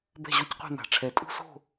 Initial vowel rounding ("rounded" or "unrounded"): unrounded